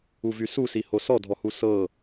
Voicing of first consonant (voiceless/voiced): voiced